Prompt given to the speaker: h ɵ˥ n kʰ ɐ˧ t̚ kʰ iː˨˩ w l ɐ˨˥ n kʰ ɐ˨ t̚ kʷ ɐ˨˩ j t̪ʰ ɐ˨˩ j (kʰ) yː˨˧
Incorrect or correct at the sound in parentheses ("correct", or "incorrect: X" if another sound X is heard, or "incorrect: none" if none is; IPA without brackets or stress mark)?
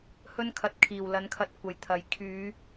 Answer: correct